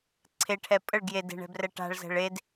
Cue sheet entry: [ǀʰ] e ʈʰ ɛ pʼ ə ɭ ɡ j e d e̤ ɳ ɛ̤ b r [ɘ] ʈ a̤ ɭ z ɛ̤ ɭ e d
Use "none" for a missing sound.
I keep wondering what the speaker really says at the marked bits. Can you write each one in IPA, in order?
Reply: ǀʰ, ɛ

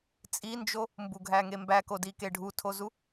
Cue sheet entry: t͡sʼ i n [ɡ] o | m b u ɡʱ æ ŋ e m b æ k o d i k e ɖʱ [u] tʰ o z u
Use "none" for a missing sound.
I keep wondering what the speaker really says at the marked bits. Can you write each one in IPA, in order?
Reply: d͡ʒ, u

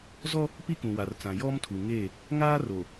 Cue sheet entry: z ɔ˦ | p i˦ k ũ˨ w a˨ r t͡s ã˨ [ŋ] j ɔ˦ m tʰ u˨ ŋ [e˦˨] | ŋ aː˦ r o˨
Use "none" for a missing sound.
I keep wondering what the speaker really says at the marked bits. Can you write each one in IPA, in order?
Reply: none, e˦˨

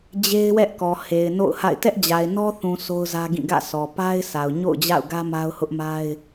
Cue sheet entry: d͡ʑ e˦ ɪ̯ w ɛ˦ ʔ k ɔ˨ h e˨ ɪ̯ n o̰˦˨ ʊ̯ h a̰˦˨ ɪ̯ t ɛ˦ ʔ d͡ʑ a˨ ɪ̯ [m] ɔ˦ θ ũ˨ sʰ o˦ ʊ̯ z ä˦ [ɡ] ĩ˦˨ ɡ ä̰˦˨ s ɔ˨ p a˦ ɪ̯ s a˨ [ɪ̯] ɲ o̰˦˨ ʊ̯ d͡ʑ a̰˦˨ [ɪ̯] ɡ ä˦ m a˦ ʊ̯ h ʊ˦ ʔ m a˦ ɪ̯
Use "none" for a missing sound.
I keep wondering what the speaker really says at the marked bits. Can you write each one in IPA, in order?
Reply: n, ɡ, ʊ̯, ʊ̯

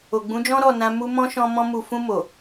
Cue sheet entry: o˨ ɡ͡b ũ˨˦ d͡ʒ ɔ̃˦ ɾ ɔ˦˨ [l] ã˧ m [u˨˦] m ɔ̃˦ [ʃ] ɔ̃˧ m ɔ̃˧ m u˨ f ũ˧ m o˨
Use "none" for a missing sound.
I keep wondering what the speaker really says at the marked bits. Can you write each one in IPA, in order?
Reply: n, u˧, ʃ

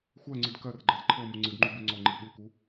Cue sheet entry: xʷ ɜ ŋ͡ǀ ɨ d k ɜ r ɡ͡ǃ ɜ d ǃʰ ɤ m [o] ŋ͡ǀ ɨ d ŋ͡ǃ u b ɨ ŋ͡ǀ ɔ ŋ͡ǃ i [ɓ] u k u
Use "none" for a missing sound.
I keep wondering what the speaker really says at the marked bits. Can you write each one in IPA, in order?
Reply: u, ɓ

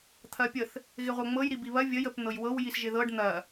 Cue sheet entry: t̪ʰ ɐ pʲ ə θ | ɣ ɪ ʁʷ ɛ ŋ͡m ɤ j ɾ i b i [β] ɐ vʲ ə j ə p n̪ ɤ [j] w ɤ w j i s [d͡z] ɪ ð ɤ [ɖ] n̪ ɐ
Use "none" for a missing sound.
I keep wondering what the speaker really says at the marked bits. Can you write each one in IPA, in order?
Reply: β, j, ʒ, ɖ

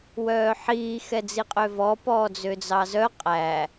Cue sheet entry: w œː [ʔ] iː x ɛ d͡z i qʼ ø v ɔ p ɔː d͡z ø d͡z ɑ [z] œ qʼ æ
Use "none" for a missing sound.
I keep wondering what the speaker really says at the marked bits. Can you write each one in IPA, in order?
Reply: ħ, z

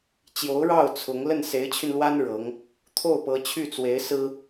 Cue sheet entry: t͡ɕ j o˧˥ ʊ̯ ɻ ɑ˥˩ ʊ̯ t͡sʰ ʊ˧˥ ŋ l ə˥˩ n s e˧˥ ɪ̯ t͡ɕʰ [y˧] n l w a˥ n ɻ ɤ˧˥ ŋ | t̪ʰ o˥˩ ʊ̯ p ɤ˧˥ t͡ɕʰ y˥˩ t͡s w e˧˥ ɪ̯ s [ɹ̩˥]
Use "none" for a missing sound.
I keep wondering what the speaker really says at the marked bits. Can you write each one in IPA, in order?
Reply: y˧, ɹ̩˥

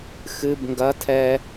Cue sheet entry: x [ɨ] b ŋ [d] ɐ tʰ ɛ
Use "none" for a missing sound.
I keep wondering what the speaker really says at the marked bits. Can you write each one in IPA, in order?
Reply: ɨ, ɡ

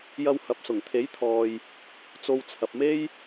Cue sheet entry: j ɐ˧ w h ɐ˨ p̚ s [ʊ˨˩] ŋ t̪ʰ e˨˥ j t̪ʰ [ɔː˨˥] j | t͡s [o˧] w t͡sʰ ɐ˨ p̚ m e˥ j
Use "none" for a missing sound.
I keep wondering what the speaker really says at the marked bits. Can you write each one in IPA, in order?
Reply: ʊ˨˩, ɔː˨, o˧

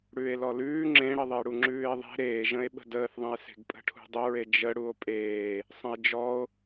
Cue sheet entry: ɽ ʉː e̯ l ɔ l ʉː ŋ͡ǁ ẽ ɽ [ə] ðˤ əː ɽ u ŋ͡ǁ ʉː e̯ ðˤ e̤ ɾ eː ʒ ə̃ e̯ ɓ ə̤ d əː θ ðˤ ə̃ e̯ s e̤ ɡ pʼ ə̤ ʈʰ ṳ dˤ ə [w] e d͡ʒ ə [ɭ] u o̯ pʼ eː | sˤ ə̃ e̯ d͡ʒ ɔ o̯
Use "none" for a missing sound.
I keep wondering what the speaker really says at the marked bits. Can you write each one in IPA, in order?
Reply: ə, ɹ, ɽ

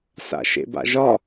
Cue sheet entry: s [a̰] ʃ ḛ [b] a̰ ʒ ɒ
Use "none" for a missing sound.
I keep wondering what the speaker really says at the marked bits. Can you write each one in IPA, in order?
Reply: a̰, b

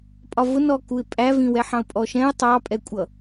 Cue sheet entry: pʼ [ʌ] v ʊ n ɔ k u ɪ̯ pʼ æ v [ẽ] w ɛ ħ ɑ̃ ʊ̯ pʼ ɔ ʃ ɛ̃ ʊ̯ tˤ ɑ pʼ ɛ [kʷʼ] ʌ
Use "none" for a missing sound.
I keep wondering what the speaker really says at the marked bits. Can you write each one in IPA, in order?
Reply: ɒ, ĩ, kʷʼ

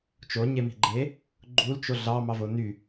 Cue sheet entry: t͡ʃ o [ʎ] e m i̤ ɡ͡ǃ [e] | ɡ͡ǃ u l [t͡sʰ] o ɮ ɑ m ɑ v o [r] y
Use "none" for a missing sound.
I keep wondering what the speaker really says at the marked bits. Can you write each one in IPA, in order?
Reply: ɲ, e, t͡ʃ, n

